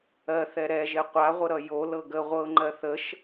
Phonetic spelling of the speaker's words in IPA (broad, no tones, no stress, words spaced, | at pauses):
ɜθɛ ɾɛʒe qʷaʁʷəɾʌ jolɤ ɡə ʁʷɤŋ͡ǃɜ θəʃ